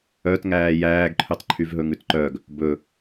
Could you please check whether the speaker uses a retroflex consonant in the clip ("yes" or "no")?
no